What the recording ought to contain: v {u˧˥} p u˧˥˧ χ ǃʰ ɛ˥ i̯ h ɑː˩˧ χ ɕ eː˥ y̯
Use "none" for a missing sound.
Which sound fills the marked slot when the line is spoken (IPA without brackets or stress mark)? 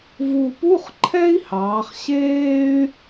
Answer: u˨˩